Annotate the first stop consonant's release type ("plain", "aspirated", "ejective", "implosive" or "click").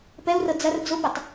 plain